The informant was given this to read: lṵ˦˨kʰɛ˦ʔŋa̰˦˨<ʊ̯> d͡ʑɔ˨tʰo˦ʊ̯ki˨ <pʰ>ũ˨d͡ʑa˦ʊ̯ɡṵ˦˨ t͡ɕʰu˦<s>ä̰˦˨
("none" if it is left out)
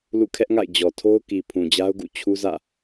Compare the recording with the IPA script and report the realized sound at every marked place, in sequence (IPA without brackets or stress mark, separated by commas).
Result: ɪ̯, pʰ, z